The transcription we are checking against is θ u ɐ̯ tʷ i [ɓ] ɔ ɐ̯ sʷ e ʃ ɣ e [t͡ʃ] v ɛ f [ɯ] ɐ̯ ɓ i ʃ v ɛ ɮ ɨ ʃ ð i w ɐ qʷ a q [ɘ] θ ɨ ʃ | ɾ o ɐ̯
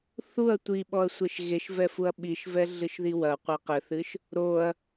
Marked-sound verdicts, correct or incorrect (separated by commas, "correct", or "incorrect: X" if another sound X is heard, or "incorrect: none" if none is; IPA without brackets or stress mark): correct, incorrect: ʃ, incorrect: u, correct